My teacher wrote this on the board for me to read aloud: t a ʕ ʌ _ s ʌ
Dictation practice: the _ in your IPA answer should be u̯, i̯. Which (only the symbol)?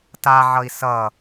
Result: i̯